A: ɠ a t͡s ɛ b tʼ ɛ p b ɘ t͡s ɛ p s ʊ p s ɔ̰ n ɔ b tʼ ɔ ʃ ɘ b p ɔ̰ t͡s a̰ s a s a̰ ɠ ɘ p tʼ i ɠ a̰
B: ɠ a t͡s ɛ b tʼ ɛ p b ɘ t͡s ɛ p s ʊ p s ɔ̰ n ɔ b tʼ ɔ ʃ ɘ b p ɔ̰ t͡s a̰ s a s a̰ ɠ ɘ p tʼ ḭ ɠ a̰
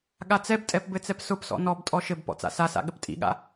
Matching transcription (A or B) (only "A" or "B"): B